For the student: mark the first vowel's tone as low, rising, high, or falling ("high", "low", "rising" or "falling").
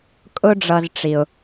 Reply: high